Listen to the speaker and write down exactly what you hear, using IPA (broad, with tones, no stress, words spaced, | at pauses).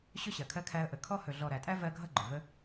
ɕɵ˦ɕɜ˨kʰɜ˧kʰæ˧ə̯ ʔə˨kʰɔ˦ hɵ˨ɮɔ˨ ɾæ˨tʼæ˦ vɜ˦ ɡʱʌ˦ɡ͡ǃɵ˨ və˦